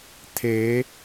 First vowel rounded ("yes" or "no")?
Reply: no